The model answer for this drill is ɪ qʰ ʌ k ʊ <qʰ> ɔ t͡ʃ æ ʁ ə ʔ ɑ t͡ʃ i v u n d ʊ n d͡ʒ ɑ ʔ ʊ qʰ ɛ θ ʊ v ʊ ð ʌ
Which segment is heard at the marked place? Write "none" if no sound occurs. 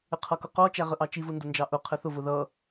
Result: q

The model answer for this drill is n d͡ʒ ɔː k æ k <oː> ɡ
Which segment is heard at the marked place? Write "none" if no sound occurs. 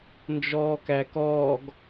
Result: ɔː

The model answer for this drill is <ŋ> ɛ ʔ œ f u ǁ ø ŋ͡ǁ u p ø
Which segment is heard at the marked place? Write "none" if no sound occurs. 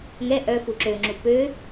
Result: ŋ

